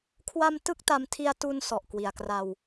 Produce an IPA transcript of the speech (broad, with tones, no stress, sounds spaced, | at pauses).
kʰ w a˧ m t ɯ˥˩ k̚ t a˧ m tʰ i˧ a̯ t u˧ n s ɔ˨˩ ʔ k w i˨˩ a̯ k r a˧ w